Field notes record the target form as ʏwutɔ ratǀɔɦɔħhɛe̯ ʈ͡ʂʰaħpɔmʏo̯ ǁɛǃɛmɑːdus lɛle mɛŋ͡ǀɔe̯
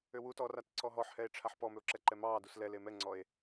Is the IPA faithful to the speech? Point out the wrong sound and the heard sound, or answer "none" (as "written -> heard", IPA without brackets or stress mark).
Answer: none